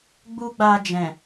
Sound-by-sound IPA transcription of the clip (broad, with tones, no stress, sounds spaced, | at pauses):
ɡ͡b u˦ ɡ͡b a˧ d͡ʒ ɛ̃˨